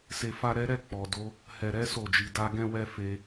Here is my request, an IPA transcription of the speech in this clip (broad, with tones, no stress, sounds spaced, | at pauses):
s e˧ f a˦ ɾ ɛ˦ ɾ ɛ˦˨ k͡p ɔ˨ d o˨˦ | h ɛ˨ ɾ ɛ˨˦ s o˦˨ d͡ʒ i˧ d a˦ ɡ ɛ̃˦ w ɛ˦ f e˧